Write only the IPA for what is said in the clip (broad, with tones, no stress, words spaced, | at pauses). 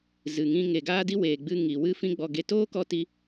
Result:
zɨ˨ŋĩ˧ ŋe˨ɡaː˦di˦ weː˨ɡ͡bɨ˧ ŋi˨wɨ˦ fĩ˦ɡ͡bɔ˧ɡe˧ toː˦kɔ˧ ti˦